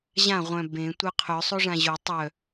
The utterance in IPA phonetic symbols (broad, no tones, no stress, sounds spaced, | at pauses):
ʑ ã ʁʷ œ̃ b ẽ tʷ œ qʰ œ sˤ o ʐ ã ʑ o tˤ œ